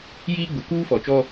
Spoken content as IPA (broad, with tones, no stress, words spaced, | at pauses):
jiː˦ɡ͡bʊ˨˦ kuː˦fɔ˨t͡ʃɔ˦